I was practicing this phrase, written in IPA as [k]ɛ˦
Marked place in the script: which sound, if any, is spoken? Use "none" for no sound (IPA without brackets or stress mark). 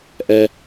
ʔ